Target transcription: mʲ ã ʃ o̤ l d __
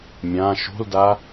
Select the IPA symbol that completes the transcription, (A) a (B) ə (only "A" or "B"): A